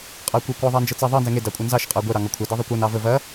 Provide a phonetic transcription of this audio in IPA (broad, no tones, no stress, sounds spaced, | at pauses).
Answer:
qʼ ɑ kʷ ɛ kʷ ɑ ðˤ ɑ n d͡ʒ ɤ t͡s ɐ ðˤ ɤ n z ɛ ŋ e d ɑ kʷʼ ɐ n z ɑ ʃ qʼ ɑ ɡʷ ɛ ɾ ɑ ŋ ɔ kʷʰ ɛ d ɤ ðˤ e kʷ ɤ n ɑ v ə v ɐ